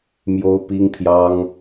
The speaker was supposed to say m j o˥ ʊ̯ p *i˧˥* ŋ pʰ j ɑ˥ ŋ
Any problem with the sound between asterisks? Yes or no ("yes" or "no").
yes